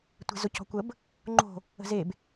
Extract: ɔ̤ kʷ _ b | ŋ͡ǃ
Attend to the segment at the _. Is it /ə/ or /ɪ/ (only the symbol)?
ə